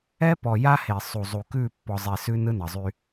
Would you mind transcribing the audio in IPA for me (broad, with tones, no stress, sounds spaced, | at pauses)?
ɛ˦ p ɔ˨ j a˦ h e˨ sˤ u˨ zˤ u˨ k ʉ˦˨ pː ɔ˨ zˤ e˨ s ʉ˦ n ɯ˦ n ʌ˨ zˤ y˦